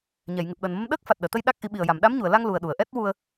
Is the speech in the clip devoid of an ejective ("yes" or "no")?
yes